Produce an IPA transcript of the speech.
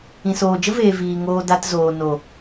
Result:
ĩ˨ s oː˨ d͡ʒ ə˦ v eː˨ v iː˨ ŋ oː˧ d a˧ t z oː˨ n o˨

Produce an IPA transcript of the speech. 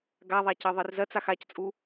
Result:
ɡ a ðˤ a c ɜ ðˤ i r z ɜ t͡s a x a c t͡sʼ u

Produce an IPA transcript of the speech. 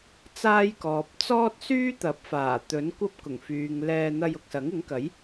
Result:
t͡s aː˥ j k ɔː˨ p̚ t͡s ɔː˥ t̚ s yː˥ t̪ ɐ˨˥ p̚ f aː˨˩ t̪ ɵ˨˥ n kʷ ɐ˥ p̚ k ʊ˨˩ ŋ f yː˨ ŋ l ɛː˧ n̪ ɐ˧ j ʊ˨ k̚ s ɐ˨˥ ŋ ɪ˨˥ ŋ k ɐ˨˥ j

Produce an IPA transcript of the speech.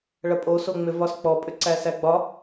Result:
ɭ ɐ pʼ o s o ŋ͡m ʏ v ɒ s k͡p ɔ pʼ ʏ ǀ æ s æ ɡ͡b ɒ

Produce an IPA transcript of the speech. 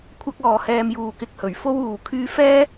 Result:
kʷʰ ɐ˥ k̚ ɔː˨˧ h ɛː˧ m j uː˨˩ k ɪ˨˥ k̚ h ɵ˨˩ ɥ f o˥ w uː˨ kʰ yː˧ f ɛː˥

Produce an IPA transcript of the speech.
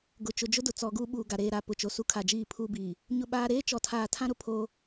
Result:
ɡ ʊ˨ t͡ʃ ʊ˨ d͡ʒ ʊ˦ d ʊ˨ t͡s ɔ˨ ɡ u˦ ɓ uː˨ ɡ a˨ ɾ eː˨ ɾ a˨ p ʊ˨ t͡ʃ o˨ s u˦ kʰ a˨ d͡ʒ iː˦˨ pʰ u˦ b iː˨ | ɲ ʊ˦ ɓ aː˦ ɾ eː˦ t͡ʃ ɔ˨ tʰ aː˨ tʰ ã˦ ɾ ʊ˦ pʰ oː˦

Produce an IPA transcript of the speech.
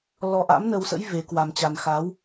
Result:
l ɔ˧ ʔ a̰˧˥ m n ə˧ w s ə̰˧˥ j v e˨˦ k w a˧ m t͡ɕ a˧ n x a˨˦ w

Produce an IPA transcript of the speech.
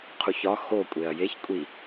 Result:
qʰ u ç ɒ x o kʷʼ e ɐ̯ j e ç kʷʼ i

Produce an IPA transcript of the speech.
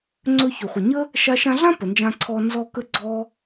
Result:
ŋ͡ǀ ɵ˧ ç ʏ˨ χʷ ə˨ ɲ ə˦ | ʃ a˧ ʃ ã˧ ɮ ã˦ p ə˨ n d͡ʒ ã˧ ǀʰ ɔ˧ n z ɔ˧ k ə˧ ɡ͡ǀ ɔ˧

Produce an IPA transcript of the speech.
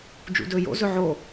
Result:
d͡ʒ ṵ d ɵː j o̰ z ɵ ʕ o

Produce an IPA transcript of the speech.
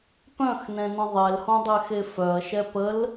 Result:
p œ̃ x n ɛ̃ n ə̃ ðˤ ɛ l h õ dˤ ɛ x e f œ ɐ̯ ʃ ɛ p ə l

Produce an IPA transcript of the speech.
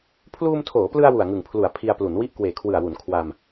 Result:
pʰ l uː˧ m tʰ oː˩˦ p l ɯ˧ a̯ w u˨˩ a̯ ŋ ɯ˨˩ ŋ pʰ l u˩˦ a̯ pʰ i˧ a̯ p l u˩˦ n w i˥˩ ʔ k w eː˨˩ kʰ w ɯ˨˩ a̯ w u˩˦ n kʰ w a˧ m

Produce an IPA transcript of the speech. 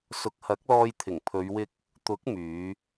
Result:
s ʊ˨˥ k̚ h ɐ˨˥ k̚ l ɔː˧ j t̪ʰ ɪ˨˩ ŋ pʰ ɵ˨˧ ɥ w ɪ˧ k̚ | t̪ ʊ˨˥ k̚ m yː˨˧

